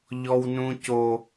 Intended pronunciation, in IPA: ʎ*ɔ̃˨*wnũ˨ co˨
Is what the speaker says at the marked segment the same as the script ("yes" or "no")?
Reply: no